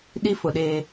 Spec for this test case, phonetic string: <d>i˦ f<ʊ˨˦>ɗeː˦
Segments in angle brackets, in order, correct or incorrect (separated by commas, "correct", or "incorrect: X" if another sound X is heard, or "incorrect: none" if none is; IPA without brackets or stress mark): incorrect: ɗ, correct